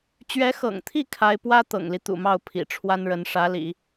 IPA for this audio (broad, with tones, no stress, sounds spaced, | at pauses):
t͡ɕ ɥ ɛ˧˥ x ɤ̰˨˩ ŋ t̪ʰ i˥˩ kʰ a˥ ɪ̯ p w ä˥ t̪ ɤ̰˨˩ ŋ l i˦ t̪ ṵ˨˩ m ɑ˥˩ ʊ̯ pʰ ḭ˨˩ ʈ͡ʂʰ w a˥ n ɻ ə˧˥ n ʂ ä˧˥ l ḭ˨˩˦